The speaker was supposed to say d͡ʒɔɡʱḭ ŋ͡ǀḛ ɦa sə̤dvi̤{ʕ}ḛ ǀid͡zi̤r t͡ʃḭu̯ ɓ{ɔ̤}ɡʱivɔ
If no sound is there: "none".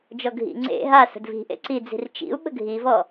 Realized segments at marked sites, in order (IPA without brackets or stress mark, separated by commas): ʔ, ə̤